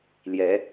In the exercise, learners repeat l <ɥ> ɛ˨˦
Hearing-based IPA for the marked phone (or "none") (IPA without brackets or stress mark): j